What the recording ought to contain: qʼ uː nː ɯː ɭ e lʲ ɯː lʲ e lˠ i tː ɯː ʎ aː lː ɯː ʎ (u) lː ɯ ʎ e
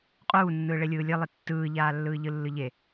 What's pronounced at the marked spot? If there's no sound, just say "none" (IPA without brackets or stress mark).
ɯ